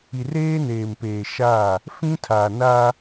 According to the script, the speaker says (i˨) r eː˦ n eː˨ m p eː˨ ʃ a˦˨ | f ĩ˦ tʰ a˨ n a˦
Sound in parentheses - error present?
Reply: no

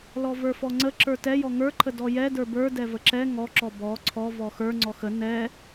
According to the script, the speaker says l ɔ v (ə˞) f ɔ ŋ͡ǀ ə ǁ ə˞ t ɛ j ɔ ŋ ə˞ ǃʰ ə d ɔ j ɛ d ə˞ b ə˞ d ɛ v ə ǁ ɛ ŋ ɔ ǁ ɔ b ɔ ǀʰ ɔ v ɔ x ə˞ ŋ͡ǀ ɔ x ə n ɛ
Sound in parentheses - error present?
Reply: no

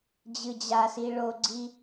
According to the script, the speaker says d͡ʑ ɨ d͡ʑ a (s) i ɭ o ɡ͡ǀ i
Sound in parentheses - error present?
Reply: no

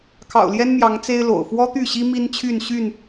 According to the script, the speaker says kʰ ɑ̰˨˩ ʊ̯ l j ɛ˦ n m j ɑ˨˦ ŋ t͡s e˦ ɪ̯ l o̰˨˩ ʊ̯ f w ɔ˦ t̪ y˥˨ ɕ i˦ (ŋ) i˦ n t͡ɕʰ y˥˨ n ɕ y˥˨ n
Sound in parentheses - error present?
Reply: yes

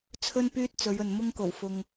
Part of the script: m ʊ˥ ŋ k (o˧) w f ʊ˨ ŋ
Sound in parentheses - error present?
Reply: yes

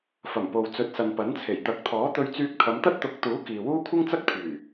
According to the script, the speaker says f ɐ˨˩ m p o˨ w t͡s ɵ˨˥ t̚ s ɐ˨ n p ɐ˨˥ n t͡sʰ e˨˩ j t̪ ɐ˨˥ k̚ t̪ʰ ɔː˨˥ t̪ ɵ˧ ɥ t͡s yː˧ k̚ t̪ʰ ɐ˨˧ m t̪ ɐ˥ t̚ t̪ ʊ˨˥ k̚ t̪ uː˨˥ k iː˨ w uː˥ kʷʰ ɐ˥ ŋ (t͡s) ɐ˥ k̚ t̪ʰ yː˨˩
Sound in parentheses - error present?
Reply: no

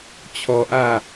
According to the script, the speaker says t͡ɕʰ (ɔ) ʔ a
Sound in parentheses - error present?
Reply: no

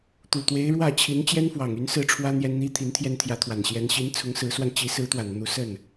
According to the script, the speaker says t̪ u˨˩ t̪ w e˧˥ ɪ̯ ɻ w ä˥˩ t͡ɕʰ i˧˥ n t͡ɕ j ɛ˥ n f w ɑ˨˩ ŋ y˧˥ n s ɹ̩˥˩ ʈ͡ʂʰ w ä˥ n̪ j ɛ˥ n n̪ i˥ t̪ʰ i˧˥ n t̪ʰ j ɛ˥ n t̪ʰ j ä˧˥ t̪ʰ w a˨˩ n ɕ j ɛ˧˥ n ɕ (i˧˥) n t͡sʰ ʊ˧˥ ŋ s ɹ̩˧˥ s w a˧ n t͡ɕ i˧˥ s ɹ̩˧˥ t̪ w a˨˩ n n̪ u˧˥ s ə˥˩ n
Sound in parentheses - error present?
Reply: no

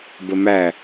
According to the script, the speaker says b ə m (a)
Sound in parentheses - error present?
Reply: yes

